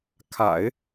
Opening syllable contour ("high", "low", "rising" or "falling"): low